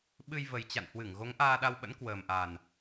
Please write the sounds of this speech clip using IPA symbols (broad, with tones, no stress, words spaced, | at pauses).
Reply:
ɓɨ˧jvə˨˩j t͡ɕa̰˧˨nhwɨ˧˩ŋ ɣo˨˦ŋʔaː˧ɗa˧wɓə̰˧˥n kwəː˨˩mʔa˨˩n